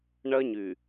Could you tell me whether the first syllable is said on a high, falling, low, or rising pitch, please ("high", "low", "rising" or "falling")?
high